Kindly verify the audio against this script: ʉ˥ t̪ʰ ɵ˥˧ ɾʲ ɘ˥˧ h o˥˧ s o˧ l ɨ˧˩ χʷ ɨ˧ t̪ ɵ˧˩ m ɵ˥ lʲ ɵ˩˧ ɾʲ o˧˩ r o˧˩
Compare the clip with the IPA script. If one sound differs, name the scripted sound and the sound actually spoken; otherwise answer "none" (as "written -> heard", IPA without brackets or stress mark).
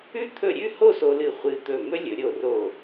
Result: ɘ˥˧ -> ʉ˥˧